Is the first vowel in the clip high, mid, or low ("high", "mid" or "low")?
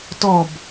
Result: mid